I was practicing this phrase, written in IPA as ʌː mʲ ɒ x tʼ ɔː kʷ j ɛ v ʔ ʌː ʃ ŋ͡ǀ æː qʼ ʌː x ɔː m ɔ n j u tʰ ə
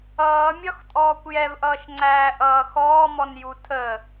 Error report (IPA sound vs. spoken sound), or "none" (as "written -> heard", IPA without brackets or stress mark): qʼ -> ʔ